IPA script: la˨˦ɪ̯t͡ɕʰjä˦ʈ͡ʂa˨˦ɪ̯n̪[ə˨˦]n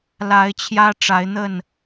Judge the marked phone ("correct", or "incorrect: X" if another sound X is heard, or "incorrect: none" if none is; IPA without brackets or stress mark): incorrect: ə˥˨